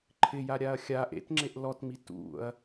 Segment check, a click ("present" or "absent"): present